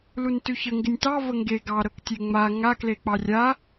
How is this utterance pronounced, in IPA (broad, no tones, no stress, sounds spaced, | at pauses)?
l u n t ʉ ç ə ŋ ɡ ɪ nʲ t ɑ v ə ŋ ɡ e ɡ ɑ ɾ ɤ k tʲ e ŋ͡m a ŋ a k l e k͡p ɑ rʲ a